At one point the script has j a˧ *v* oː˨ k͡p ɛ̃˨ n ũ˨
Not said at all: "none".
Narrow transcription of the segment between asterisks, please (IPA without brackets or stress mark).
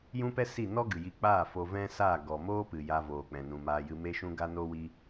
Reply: v